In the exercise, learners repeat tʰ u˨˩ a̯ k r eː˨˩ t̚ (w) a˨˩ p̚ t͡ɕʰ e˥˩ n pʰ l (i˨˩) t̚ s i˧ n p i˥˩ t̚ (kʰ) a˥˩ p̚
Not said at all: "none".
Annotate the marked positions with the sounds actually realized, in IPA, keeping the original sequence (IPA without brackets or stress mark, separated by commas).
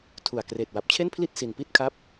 w, i˥˩, kʰ